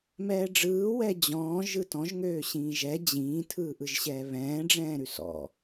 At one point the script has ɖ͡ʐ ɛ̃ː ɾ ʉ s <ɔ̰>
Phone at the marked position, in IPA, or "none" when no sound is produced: ɔ̰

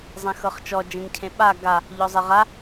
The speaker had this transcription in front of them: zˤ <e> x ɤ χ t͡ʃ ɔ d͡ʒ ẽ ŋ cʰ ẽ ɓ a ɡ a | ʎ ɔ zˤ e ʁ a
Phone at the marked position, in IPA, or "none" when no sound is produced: ẽ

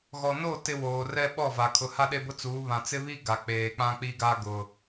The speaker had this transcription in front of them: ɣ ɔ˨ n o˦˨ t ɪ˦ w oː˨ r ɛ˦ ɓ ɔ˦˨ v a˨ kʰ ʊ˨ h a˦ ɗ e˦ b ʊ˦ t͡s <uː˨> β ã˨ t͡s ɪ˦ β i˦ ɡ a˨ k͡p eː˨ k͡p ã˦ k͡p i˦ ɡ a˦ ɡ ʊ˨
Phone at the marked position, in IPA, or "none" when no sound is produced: uː˨˦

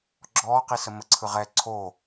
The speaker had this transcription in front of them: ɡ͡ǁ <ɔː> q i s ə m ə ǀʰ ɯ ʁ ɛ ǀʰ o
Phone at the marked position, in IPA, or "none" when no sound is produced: ɔː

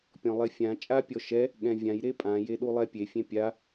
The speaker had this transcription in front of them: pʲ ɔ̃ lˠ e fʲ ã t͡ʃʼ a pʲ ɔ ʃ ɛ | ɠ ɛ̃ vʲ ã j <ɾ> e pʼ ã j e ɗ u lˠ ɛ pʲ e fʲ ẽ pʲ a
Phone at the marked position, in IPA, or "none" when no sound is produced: ɾ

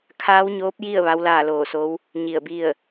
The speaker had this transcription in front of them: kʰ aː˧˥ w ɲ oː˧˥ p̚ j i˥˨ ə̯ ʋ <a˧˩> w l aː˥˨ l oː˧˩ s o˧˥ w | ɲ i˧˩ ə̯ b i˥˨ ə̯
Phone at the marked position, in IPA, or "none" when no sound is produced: a˧˥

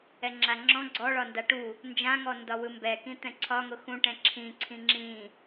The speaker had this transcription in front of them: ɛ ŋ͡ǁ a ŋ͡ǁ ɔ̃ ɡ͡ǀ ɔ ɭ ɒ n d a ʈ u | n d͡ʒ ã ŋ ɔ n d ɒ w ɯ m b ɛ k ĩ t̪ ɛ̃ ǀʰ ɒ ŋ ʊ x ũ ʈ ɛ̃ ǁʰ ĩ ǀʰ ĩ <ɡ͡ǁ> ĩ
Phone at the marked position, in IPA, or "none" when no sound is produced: ŋ͡ǁ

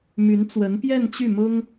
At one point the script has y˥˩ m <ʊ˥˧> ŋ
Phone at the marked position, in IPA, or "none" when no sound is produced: ʊ˥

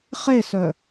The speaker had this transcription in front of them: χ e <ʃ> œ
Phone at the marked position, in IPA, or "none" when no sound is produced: s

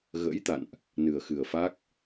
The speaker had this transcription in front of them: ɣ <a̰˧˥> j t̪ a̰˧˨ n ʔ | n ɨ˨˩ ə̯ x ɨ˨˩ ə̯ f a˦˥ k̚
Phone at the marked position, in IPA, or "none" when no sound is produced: ə̰˧˥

